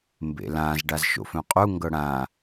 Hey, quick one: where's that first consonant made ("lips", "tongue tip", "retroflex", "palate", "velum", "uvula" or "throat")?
lips